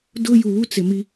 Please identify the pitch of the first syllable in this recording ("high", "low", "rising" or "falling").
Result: high